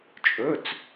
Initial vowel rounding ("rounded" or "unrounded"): rounded